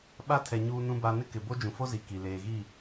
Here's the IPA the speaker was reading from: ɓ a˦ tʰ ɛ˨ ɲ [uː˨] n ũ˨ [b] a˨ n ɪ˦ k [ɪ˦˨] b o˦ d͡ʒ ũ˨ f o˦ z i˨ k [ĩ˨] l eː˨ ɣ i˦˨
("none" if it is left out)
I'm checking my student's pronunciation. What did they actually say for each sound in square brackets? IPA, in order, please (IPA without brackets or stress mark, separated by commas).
uː˨, b, ɪ˨, i˨